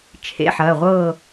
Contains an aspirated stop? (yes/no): yes